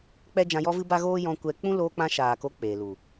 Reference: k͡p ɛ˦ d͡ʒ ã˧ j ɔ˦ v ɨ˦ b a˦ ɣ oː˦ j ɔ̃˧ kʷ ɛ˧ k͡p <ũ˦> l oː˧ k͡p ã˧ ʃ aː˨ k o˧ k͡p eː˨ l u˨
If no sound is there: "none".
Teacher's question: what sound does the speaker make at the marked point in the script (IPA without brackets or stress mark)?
ũ˦